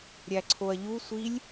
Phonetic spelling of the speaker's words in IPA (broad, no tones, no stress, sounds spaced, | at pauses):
ɾʲ æ ǀʰ o ɐ̯ ʎ u sʷ i lʲ